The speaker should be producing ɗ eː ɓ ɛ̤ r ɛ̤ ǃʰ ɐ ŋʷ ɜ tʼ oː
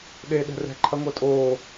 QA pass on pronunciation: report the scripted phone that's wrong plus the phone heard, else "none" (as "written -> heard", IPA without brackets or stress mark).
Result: ɓ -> ɗ